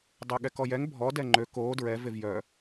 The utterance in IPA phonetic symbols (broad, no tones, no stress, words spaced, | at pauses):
dˤəːɠɛkɔjɛŋ bʱɔ dɛŋ͡ǃø koː dɹɛ vevjœ